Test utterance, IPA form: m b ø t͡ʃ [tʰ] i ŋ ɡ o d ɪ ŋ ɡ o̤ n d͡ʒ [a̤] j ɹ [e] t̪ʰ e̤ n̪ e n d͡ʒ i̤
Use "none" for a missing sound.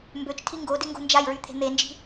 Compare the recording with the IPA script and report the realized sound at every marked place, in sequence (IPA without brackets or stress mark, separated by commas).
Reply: tʰ, a, y